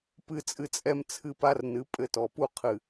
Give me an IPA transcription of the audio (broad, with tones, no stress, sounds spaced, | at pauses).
p ɨ˦ t͡sʼ ɨ˧ t͡sʼ ɛ˦ m t͡sʰ ɨ˦ p a˦ r n ɨ˨˦ pʼ ɘ˦ t ɔ˨ p u˦ qʰ ɨ˨